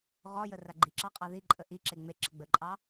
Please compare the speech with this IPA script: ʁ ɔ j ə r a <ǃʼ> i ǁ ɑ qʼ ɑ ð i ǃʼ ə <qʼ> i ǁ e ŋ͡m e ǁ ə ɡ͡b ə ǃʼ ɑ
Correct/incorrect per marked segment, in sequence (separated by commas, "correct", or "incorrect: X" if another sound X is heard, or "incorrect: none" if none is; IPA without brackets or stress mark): incorrect: ɡ͡ǃ, incorrect: ʔ